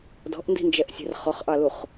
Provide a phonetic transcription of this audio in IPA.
d ɔ̤ ʔ n d i̤ n d͡ʒ ɛ ʔ sʲ ɛ̤ r χ ɔ χ ʔ ɑ l u χ

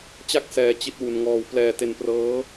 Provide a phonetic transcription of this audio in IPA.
t͡ɕ a˥˩ k̚ s ɛː˧ t͡ɕ i˦˥ t̚ w u˧ n ŋ ɔː˧ w p l ɛː˧ t e˧ n p r ɤː˦˥

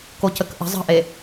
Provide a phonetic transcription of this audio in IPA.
k o c ə k ʔ ə̤ zˤ ə̤ ʔ e

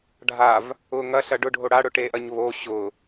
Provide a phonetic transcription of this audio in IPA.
ɖʱ a v | ʊ ŋ ɐ ɬ ɐ ɖ ʊ ɖʱ o ɽ a ɽ ʊ ʈ e ʔ ɐ ɲ β o ɕ ʊ

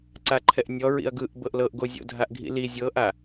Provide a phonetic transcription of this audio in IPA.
ǀ a ǃʰ ɛ ʔ nʲ ɔ ɹ ḭ ɐ̯ ɡ ɯ ʔ b ɤ ʔ l ɤ ʔ ɡ o zʲ o̰ dʱ a ʔ ɡʱ ḭ l i zʲ ɤ ʔ a

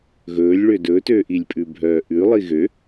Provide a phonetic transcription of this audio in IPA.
ɣ ɵː lʲ ɭ ø d ɵ t øː ʔ i lʲ pʼ ʉ bʱ œː ʔ ʉ lˠ i ɣ ø

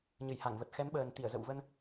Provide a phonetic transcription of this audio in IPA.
ɲ ɨ˧˩ j h a˧˩ ŋ v ə˨˩ t̚ x ɛ˨˦ m ɓ əː˨˩ n t̪ i˧˩ ə̯ z ə̰˧˨ w v ə˧ n

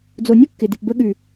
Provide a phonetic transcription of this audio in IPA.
d͡z o˨ nʲ u˦ kː ɪ˨ d ɪ˨ p b ə˧ ɠ ʉ˨

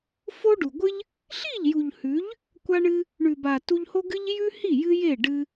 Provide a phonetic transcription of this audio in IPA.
f o˦ ɖ u˨ ɡʷ ɨ˦ ʎ | ɬ i˦˨ ʎ j u˨ ʎ h ʉ˨˦ ʎ | kʷ a˦ ɳ ɨ˦ | ɳ ʉ˨ b a˨ t u˧ ʎ h o˦ ɡ ɨ˦ ʎ j ʉ˦ h i˦˨ j ɨ˦ j e˦˨ ɖ ɨ˧

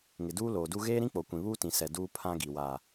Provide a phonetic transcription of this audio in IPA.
ŋ ɪ˨ d uː˦ l oː˨ d u˦ ɣ eː˦ ɾ ĩ˦ k͡p o˨ kʷ ĩ˨ β uː˦ t ĩ˨ s ɛ˨ d uː˦ pʰ ã˦ ɡ i˨ w aː˨

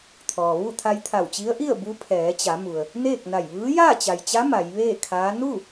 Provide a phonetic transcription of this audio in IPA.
t̪ʰ ɔː˩ ʋ u˥˨ t̪ʰ a˧ j t̪ʰ a˧˩ w t͡ɕ i˧˥ ə̯ ʔ i˥˨ ə̯ b u˧˥ pʰ ɛː˩˧ t͡ɕ a˩˧ m u˩ ə̯ | n eː˥˨ k̚ n a˧˩ j ʋ ɯː˧˥ j aː˥˨ t͡ɕ a˩ j t͡ɕ a˧˥ m a˩˧ j ʋ eː˥˨ kʰ aː˧˥ n u˥˨

